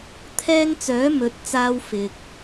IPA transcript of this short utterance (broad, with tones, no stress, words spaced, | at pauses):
t̪ʰɛː˥ŋ t͡sœː˨˥mɵ˨˥t̚t͡saː˧w fɪ˨k̚